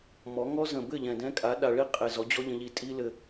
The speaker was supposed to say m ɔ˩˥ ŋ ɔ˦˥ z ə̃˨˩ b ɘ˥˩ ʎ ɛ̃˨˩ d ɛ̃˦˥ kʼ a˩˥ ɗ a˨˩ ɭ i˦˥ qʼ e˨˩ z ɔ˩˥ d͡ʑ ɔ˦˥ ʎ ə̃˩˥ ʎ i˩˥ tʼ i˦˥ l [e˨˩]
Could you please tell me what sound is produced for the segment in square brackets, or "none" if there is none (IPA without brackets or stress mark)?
ɘ˨˩